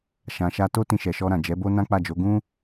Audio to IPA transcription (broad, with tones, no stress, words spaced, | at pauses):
ʃã˨ʃa˧to˦ tĩ˧ʃɛ˨ʃɔ˧ɾã˨ d͡ʒɛ˨˦bo˦ nã˦k͡pa˦˨d͡ʒo˨˦ ɡũ˦